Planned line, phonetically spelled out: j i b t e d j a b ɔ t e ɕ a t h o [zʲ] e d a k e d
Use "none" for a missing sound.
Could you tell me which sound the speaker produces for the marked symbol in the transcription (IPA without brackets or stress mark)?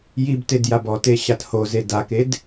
z